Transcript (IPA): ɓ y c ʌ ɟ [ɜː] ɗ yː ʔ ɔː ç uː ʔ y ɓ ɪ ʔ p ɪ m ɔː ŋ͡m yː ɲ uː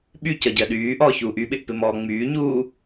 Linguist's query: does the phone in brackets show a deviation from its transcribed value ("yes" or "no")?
yes